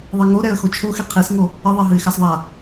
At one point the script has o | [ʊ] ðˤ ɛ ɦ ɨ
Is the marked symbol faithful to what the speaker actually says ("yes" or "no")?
no